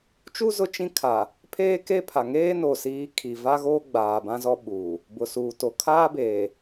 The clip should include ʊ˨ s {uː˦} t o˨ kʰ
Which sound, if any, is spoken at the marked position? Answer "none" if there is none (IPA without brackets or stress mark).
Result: uː˨